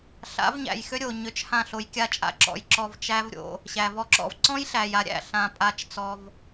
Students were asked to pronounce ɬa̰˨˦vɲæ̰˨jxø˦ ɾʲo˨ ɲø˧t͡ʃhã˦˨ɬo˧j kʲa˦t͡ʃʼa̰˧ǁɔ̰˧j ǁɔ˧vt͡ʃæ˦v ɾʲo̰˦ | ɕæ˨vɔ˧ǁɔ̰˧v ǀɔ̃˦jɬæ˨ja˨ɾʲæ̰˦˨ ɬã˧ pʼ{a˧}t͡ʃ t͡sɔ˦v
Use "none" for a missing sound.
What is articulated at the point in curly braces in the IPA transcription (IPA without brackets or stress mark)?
a˧